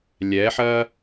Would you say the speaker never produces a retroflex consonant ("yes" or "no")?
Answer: yes